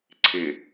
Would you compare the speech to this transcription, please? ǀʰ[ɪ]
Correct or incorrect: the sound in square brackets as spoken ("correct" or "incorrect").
correct